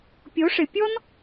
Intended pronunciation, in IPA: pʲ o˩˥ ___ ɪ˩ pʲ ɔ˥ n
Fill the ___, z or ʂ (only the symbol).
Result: ʂ